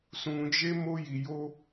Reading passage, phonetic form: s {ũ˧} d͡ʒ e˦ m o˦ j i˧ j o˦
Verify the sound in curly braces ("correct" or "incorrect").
correct